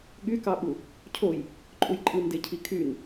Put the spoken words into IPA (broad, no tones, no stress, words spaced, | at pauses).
ɠykɑɓu | cʰoj | ǃʼujǃʼɯndecʰi kʰyn